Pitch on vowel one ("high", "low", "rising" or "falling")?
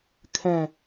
falling